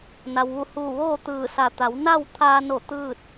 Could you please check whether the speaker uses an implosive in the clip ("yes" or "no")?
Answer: no